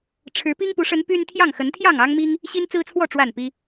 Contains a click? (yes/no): no